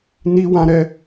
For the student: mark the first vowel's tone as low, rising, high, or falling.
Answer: high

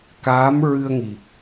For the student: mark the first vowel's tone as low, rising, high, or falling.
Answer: rising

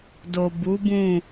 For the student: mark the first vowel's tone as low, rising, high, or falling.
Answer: low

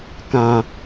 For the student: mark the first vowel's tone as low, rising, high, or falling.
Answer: low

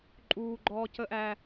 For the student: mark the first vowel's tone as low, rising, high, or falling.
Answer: high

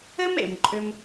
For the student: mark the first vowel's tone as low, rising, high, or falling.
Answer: high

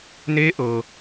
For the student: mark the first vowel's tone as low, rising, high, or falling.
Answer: rising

